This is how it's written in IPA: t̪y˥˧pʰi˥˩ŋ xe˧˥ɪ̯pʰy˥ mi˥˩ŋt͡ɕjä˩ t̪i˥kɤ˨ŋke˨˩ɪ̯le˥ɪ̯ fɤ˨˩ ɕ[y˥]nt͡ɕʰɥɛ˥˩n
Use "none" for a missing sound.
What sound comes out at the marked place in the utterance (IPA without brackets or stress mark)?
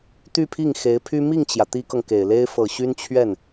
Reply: y˥